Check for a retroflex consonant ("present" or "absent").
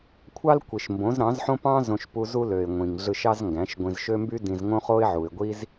absent